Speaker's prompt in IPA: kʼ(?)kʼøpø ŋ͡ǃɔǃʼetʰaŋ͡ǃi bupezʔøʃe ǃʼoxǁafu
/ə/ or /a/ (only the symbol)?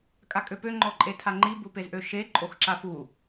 a